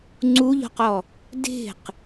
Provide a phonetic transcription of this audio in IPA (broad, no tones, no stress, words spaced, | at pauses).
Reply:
ŋ͡ǀuʎɔ̤qɔ | de̤q